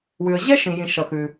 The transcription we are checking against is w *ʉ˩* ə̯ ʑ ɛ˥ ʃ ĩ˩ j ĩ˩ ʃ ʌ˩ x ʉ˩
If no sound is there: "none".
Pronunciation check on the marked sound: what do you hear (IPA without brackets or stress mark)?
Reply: ʉ˩